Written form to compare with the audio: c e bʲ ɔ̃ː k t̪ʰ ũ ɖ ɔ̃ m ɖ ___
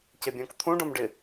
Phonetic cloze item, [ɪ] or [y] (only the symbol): ɪ